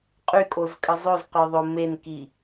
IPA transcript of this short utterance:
qʼykʼozkʼə zˤozqœðˤo menki

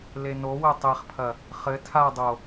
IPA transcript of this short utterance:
lenowɘ tˤeχpʰɐ | χɘ tʰadˤo

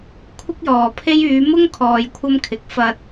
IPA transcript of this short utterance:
kʷʰɪ˥k̚jɔː˨pʰe˥j yː˨˧mʊ˥ŋ kʰɔː˧jkʷʰɐ˥mkʰɪ˨˥k̚ fɐ˧t̚

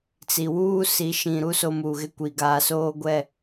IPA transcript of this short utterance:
t͡si˨ wuː˦ si˨˦ ʃĩ˨ɾu˦ so˦muː˨ɣɪ˦kʷi˨ ɡa˨ soː˦ɡʷɛ˦˨

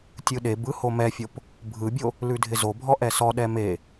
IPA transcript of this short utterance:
tʲɯɗebɯ homɛfʲop | bʱɯbʲo | lʉdʱɪzobʱɔ ʔɛsɔɗɛ me

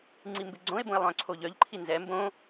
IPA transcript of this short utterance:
ŋ͡ǀimbɪɡ͡ǀõe̯bõe̯ lˠœ̃ǀʰoʎœʎǃʰi nzɛ mbõ

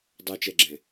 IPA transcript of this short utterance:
dˤɛt͡ʃɛɡ͡ǁɛ̃

